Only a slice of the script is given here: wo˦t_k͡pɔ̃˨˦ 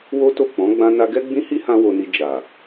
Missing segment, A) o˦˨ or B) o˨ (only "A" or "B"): A